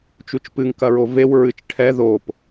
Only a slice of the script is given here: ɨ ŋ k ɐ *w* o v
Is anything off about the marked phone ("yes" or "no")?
yes